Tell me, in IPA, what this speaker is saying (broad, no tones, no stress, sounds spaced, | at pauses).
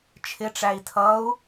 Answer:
t͡ʃʰ ɪ ʈ͡ʂ æ i̯ tʰ ʌ u̯